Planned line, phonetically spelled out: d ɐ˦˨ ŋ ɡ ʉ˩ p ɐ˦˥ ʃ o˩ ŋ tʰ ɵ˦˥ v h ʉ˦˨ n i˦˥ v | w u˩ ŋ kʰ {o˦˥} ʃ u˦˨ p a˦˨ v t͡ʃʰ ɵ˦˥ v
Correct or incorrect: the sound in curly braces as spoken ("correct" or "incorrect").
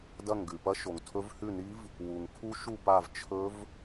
incorrect